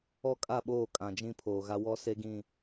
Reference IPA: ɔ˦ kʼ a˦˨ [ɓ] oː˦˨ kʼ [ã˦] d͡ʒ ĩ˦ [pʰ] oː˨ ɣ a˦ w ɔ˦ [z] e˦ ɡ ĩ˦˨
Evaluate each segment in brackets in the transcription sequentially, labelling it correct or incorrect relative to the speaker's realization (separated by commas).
correct, incorrect, correct, incorrect